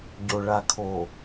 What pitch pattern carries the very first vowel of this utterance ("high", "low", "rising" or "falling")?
low